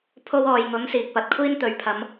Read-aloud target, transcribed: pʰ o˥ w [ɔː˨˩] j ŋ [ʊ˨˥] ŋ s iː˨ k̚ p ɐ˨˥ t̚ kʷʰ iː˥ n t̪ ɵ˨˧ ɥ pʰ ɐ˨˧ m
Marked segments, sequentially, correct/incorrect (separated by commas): incorrect, correct